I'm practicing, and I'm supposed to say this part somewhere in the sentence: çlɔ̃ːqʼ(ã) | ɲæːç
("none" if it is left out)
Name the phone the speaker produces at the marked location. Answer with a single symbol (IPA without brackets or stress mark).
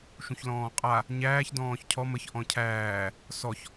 a